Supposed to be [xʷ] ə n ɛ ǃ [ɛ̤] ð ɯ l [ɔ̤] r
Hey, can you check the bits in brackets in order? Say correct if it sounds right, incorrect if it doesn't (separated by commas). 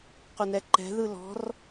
incorrect, correct, correct